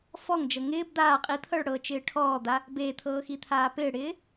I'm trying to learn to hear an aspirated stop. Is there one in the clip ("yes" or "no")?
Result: yes